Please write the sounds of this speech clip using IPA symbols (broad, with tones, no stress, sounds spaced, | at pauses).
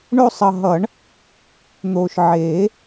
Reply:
ɳ o˦˨ sˤ ʌ˨ ɦ ʌ˨˩˦ ɳ | n̪ oː˨ ʃ ʕ eː˨˩˦